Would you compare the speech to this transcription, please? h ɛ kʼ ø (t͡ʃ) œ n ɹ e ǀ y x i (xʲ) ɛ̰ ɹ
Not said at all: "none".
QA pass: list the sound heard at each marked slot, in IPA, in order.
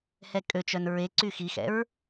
t͡ʃ, x

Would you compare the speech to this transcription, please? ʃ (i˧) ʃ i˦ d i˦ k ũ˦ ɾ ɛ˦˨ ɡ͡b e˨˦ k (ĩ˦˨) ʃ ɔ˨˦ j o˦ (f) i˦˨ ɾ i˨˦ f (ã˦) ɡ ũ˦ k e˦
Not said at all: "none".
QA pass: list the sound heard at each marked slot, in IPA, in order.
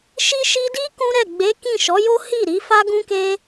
i˦, ĩ˦˨, h, a˦

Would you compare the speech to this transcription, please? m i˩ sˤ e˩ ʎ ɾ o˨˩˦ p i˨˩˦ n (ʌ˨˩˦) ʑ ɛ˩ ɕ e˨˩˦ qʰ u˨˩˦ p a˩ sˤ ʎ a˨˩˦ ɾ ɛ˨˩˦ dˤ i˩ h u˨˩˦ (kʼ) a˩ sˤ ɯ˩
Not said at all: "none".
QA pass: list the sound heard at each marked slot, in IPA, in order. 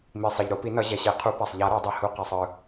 ʌ˨˩˦, q

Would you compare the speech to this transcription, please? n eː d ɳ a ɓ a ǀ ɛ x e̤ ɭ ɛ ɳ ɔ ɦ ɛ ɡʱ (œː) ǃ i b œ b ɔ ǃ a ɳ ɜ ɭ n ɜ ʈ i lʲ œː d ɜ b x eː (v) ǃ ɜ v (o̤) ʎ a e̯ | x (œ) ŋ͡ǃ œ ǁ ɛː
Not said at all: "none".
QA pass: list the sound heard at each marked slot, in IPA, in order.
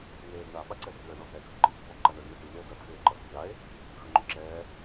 œ, none, o̤, œ

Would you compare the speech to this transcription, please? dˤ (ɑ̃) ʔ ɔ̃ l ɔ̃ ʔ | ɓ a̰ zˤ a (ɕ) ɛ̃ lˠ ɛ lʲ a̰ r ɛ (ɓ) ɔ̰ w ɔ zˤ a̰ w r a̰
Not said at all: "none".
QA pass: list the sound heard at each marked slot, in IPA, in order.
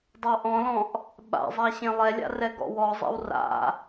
ɑ, ɕ, ɡ

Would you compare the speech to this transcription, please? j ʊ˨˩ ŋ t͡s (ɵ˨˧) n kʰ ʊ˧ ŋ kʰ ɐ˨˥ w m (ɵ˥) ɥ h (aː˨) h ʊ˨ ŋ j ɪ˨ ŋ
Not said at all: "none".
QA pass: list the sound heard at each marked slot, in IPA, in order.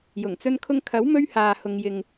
ɵ˧, ɵ˧, aː˨

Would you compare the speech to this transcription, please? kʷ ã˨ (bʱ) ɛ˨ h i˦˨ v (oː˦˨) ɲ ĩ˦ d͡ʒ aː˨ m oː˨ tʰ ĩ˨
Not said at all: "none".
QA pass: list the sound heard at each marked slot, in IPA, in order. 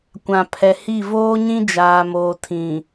pʰ, oː˦

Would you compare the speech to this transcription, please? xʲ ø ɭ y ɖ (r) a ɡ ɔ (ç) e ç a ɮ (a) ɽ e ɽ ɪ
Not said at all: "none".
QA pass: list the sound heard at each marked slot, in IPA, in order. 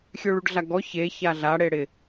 ɮ, ç, a

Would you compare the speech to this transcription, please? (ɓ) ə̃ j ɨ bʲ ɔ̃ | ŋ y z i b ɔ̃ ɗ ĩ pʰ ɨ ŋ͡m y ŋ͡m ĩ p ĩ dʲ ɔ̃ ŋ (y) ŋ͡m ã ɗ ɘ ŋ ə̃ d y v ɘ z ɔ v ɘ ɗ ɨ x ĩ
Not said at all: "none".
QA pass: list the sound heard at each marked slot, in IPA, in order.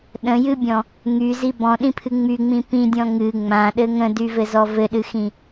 ɗ, ɨ

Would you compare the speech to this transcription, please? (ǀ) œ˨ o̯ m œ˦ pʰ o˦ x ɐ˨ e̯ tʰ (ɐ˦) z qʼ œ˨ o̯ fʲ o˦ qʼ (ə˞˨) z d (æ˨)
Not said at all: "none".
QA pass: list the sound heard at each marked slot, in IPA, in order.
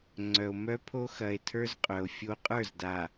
ŋ͡ǀ, ə˞˦, ə˞˦˨, a˨

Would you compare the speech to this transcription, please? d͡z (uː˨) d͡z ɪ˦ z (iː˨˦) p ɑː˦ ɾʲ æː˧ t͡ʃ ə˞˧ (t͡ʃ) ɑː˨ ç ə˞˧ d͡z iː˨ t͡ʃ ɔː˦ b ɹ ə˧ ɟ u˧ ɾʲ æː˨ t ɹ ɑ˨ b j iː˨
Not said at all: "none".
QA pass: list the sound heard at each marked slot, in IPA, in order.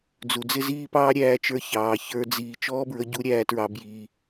u˨, iː˦, ç

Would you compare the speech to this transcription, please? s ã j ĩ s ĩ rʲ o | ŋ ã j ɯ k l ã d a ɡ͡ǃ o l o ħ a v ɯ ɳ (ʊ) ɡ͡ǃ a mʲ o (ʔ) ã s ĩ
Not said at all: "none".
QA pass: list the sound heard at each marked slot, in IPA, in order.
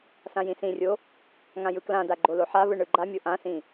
ɯ, ʔ

